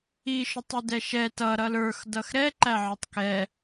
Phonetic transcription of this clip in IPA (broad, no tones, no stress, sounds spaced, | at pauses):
i ʃ ʊ tˤ i d ɛ ʃ ɛ t ʌ ɾ ʌ l ə˞ x d ʌ x ɾ ɛ ǃ æ ʕ ə˞ tˤ k ɛ